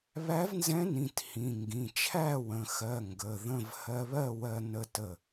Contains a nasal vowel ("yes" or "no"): yes